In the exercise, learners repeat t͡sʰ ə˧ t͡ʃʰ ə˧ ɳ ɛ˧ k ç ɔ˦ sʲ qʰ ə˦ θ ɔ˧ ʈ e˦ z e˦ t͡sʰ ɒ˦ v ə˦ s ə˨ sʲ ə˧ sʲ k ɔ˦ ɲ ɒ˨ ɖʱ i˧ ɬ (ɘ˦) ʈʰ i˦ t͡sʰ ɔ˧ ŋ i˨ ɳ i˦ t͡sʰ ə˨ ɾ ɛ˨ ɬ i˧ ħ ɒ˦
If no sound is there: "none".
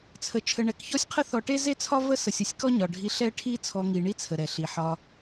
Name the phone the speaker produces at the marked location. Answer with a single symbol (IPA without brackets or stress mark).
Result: ɛ˦